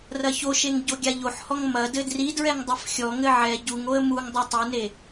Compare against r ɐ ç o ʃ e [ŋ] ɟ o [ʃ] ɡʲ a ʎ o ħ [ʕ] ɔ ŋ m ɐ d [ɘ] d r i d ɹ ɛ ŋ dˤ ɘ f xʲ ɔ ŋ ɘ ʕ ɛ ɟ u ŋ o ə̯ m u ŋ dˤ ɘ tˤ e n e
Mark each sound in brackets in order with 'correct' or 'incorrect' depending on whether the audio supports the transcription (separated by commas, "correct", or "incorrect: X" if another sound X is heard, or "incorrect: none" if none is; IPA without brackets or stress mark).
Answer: correct, incorrect: none, incorrect: h, correct